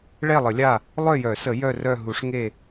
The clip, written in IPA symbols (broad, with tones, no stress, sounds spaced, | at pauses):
ɭ ɛ˦˨ lˠ ə˨˩˦ lʲ a˦˨ | lˠ œ˦˨ j œ˨˩˦ s ə˨˩˦ j œ˦˨ r œ˦˨ ɦ u˨˩˦ ʂ ŋ e˦˨